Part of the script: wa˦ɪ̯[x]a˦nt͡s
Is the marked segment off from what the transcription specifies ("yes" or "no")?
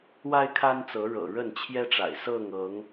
yes